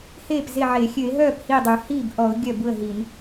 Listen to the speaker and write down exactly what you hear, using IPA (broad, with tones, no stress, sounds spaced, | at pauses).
h eː˥˩ p z e˥˩ ʕ e˧˩˧ xʲ ø˧˩˧ ɪ̯ ɦ œː˥˩ p h i˥˩ dˤ y˧˩˧ h i˥˩ b ʔ ɔ˧˩˧ ʊ̯ ɡʲ œ˥˩ b u˥˩ ə̯ ɦ i˧˩˧ n